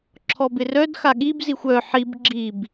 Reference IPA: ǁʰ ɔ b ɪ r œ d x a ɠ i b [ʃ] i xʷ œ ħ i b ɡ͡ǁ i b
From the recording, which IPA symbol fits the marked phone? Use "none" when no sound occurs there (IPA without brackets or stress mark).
z